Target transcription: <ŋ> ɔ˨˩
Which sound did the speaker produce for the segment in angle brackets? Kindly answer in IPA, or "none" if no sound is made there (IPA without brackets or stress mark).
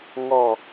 ŋ